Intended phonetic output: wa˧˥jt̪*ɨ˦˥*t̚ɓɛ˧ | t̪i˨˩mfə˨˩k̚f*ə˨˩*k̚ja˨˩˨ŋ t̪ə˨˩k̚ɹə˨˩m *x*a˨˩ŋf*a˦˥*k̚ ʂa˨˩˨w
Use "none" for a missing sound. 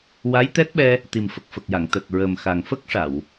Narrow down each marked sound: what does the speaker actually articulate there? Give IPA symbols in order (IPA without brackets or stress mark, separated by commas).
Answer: ɛ˦˥, ə˨˩, x, ə˦˥